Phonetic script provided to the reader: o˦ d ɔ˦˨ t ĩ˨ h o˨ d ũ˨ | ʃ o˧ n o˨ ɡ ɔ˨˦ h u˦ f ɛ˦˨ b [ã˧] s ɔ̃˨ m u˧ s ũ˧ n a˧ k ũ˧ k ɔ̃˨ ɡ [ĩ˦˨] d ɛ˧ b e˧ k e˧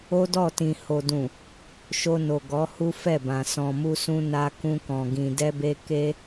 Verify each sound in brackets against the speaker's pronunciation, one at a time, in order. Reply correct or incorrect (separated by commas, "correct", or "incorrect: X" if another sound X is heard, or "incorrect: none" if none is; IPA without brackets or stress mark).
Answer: incorrect: ã˨, incorrect: ĩ˨